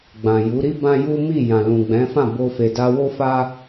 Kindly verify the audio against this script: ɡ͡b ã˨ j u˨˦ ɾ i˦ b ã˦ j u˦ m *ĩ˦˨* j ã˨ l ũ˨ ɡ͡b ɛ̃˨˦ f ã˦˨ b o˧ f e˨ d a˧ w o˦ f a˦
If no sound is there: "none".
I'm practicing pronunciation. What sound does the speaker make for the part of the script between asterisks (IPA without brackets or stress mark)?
i˦˨